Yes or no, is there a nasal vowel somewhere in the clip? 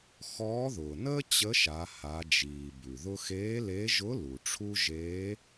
no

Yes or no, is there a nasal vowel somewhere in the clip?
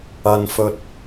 no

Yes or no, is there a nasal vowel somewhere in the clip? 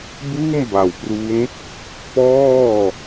no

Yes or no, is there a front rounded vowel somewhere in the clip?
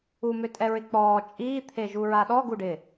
yes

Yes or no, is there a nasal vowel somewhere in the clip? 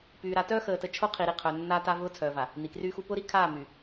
no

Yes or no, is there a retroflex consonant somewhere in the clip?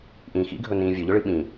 yes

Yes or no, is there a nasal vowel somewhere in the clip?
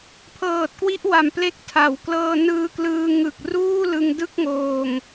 no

